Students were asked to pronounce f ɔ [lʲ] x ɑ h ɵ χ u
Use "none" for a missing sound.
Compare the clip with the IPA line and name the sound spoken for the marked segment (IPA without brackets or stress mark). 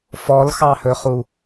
l